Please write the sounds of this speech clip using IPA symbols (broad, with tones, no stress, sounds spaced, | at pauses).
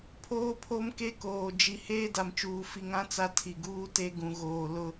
pʰ oː˦ pʰ o˦ m k e˦ k oː˨ d͡ʒ i˨ h eː˦ d a˨ m t͡ʃ uː˨ f i˨ ŋ ã˦ t͡s a˦ tʰ i˨ ɡ uː˦ t e˦ ɡ ũ˨ ɣ oː˨ l ʊ˦